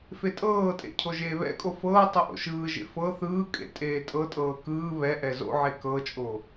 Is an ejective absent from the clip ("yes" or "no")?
no